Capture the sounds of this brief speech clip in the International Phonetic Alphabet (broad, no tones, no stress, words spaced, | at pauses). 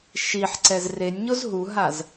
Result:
ʃiħǀɛz renʲɲoz ɦuɦaz